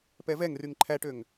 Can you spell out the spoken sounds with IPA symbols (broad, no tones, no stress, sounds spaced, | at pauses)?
p ɛ v ɛ ŋ r y ŋ ǃʰ æ ʈ ø ŋ